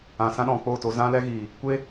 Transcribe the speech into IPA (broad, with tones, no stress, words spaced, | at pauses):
ã˨sã˦ɗɔ̃˨k͡po˦˨ to˧zã˦lɛ˦ɣiː˨ | kʷe˦